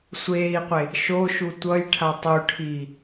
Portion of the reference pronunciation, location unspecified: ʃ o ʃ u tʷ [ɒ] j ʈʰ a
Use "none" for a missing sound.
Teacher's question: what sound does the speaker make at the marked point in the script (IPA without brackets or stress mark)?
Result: ʌ